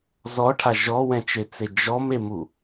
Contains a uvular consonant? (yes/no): no